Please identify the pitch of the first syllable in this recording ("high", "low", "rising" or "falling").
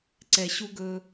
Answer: low